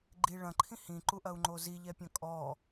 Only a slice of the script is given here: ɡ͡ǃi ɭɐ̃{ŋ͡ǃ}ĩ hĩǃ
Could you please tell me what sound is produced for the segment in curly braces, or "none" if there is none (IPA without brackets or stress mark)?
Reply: ǃʰ